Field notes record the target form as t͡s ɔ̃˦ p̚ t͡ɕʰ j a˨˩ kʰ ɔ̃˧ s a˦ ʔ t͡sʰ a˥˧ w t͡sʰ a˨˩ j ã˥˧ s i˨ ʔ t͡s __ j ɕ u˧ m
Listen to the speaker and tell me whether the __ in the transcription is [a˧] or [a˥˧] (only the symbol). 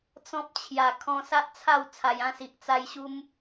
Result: a˧